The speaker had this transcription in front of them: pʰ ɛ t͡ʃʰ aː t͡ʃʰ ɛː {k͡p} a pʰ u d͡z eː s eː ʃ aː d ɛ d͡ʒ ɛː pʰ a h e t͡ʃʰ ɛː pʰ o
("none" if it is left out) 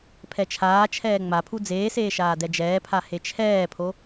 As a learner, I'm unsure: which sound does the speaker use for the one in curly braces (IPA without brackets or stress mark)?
ŋ͡m